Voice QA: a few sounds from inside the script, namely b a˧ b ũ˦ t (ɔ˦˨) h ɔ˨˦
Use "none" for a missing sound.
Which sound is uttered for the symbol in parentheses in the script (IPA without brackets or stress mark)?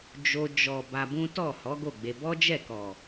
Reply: ɔ˦˨